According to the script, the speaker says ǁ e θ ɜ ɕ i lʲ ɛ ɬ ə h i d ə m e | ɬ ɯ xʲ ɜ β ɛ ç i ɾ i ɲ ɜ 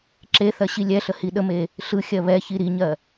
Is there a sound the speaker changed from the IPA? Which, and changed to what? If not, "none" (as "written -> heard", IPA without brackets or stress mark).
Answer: d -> ɗ